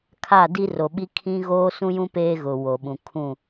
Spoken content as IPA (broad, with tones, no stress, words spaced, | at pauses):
kʰa˦˨di˦ro˨ɓi˦ kʰĩ˦ ɣoː˦sũ˦jũ˦ peː˦ɣʊ˨ wo˨ɓũ˨ kʰũ˦˨